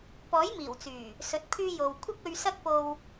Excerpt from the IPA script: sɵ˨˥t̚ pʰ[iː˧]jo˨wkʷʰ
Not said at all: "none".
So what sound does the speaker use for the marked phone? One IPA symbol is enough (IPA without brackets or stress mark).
yː˧